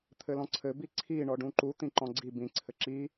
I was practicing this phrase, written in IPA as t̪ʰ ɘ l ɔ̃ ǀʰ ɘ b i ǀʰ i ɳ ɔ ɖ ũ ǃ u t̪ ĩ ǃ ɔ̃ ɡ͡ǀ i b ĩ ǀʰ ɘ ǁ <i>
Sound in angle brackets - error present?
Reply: no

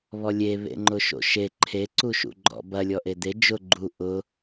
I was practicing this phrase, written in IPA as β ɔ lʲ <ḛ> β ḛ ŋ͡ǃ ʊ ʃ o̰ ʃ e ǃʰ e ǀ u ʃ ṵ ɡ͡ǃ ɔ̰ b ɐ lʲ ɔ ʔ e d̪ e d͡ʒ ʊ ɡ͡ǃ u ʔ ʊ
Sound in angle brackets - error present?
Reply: yes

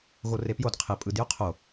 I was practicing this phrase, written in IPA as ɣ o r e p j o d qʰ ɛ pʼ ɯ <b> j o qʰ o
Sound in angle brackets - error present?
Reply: yes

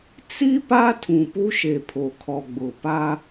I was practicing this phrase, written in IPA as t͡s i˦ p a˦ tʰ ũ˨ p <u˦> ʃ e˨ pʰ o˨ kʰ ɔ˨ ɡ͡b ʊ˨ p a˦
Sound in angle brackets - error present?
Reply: no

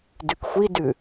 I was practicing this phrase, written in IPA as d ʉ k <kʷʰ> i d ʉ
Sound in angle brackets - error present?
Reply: yes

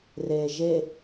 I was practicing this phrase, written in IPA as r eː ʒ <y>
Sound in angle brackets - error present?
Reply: yes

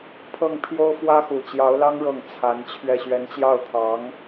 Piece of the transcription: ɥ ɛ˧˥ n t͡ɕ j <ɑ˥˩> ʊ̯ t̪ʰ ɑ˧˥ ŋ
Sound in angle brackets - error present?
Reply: no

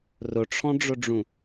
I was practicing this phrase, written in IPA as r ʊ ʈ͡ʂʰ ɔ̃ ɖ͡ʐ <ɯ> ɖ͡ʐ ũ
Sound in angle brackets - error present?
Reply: yes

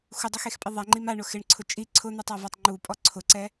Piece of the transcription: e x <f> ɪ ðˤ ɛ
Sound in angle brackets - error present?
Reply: yes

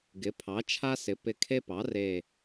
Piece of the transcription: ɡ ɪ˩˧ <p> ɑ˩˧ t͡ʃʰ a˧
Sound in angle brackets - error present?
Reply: yes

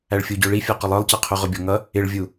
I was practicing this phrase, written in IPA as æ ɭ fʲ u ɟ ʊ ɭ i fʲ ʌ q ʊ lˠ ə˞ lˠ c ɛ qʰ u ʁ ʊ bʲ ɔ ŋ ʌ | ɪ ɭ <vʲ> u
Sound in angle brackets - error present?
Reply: no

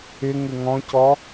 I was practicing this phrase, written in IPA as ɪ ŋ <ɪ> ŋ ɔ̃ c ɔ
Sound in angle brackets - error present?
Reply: no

